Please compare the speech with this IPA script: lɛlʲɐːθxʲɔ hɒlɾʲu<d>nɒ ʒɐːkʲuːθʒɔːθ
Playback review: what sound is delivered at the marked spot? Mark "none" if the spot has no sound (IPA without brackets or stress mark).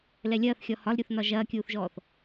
θ